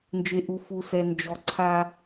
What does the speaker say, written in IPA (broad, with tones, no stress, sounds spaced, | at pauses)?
n d͡ʒ e˨ ʔ u˨ f u˨ s ɛ˨ n d͡ʒ ɔ˨ ǀʰ a˦